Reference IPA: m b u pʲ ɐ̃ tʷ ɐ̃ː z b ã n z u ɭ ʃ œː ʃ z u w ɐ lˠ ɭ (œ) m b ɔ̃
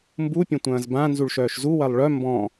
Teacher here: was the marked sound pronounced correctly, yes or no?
yes